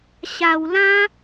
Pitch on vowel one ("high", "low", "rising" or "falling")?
low